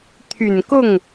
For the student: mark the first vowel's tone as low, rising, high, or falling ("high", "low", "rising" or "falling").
low